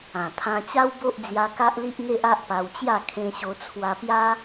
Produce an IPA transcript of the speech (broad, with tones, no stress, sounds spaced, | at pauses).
ã˨˩ t̪ʰ ã˧ t͡ɕ a˦ w b o˦ ʔ d͡z j a˧ k a˦ ʔ l i˦ ʔ ŋ e˦ ʔ a˦ ʔ p a˧ w t͡ɕ j a˥˧ kʰ ẽ˧ ɕ o˧ t͡sʰ w a˧ p j a˦